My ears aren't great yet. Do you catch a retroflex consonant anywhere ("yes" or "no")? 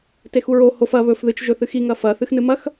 no